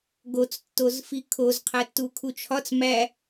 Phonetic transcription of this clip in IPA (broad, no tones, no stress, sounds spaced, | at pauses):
ɡ o t͡s tː o z f i kʰ o z qʰ æ tː u kʰ u t͡ʃʰ ɒ t͡s m æ